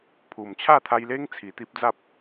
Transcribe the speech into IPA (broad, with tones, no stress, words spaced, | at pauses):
pʰu˨˩mt͡ɕʰa˥˧t̪ʰa˧jle˦ŋ t͡sʰi˨˩t̪i˦p̚d͡za˦p̚